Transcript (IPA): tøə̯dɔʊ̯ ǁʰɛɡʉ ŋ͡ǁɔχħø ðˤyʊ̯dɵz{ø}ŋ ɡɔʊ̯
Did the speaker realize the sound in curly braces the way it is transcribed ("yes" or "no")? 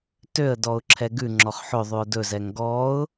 no